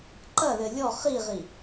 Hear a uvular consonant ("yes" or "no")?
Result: yes